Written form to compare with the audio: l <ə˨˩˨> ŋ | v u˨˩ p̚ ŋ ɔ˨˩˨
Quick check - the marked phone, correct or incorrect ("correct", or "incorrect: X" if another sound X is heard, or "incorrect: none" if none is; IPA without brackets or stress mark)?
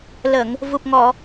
correct